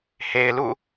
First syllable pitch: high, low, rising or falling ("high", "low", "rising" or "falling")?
low